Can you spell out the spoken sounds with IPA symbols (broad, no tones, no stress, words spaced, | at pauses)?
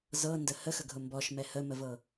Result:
zɤndə həxəɡʱʊ mbɔʃmɛ həməvɤ